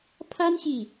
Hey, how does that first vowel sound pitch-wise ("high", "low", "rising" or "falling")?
high